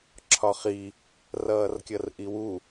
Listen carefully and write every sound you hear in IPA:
ǁʰ ɒ χ i | r ʌː r kʲ ʌ r ʔ i w u

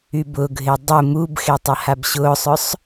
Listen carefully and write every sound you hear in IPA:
y b ʊ ɡʱ ɪ dˤ ʊ m u b x e tˤ ɐ h a b ɕ ʊː sˤ œ sˤ

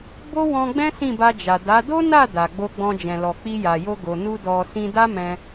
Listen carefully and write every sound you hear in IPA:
b o˦ w ɔ̃˧ ɡ͡b ɛ̃˦ s ĩ˦˨ b a˧ d͡ʒ a˨ d a˨˦ d o˦ n a˦˨ d a˨ ɡ͡b o˧ ɡ͡b ɔ̃˧ d͡ʒ ɛ̃˨ l ɔ˨ k͡p i˧ j a˨ j o˧ ɡ o˨ n u˧ d ɔ˧ s ĩ˧ d a˦ m ɛ̃˧

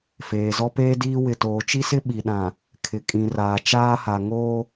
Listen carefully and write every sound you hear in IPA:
f eː˨ z ɔ˦ p eː˦ d iː˦ w ɪ˨ t oː˨ t͡ʃ i˦ s ɪ˦ ɓ i˨ ɗ ã˨ | kʰ ɪ˨ kʼ ĩ˨ r aː˨ t͡ʃ aː˦ h a˨ ŋ oː˦

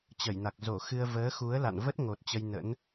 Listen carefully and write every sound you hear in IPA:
t͡ɕ ə˧˩ j n a˨˩ k̚ z o˧˩ x ɨ˧ ə̯ v əː˨˦ x u˨˦ ə̯ l a̰˧˨ n v ə˦˥ t̚ ŋ o˨˩ t̚ t͡ɕ ə˧ j n ə̰˧˥ n

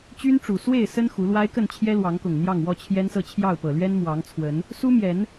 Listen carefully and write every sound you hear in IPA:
t͡ɕ y˦ n ʈ͡ʂ u˨˩ s w e˥˨ ɪ̯ s ə˦ n x u˨˦ l w a˦ ɪ̯ k ə˥˨ n t͡ɕʰ j ɛ˦ l w ɑ˨˦ ŋ k ʊ˨˩ ŋ n̪ j ɑ˥˨ ŋ w ɔ˥˨ t͡ɕʰ j ɛ˦ n s ɤ˥˨ t͡ɕʰ j ɑ˥˨ ʊ̯ p ɤ˨˩ l ɥ ɛ˦ n m w ɑ˨˦ ŋ t͡sʰ w ə˨˦ n | s u˦ m j ɛ˨˦ n

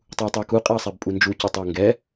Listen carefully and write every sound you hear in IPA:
tˤ u ɐ̯ tˤ ʉ ɐ̯ k u qʼ ɛ ɐ̯ sˤ ɛ b pʼ u n d͡ʒ u c u tˤ u ɐ̯ ŋ ɡ ɛ

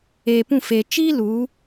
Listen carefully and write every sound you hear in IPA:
eː˨ p ũ˦˨ f e˨ t͡ʃ iː˦ l u˨˦

